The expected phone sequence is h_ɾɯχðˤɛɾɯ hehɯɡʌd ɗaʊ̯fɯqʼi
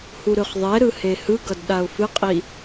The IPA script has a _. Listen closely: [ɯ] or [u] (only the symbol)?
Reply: u